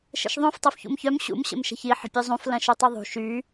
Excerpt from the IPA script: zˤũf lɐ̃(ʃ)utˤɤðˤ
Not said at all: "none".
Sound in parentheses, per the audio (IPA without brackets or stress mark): ʃ